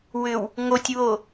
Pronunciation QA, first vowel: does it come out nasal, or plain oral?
oral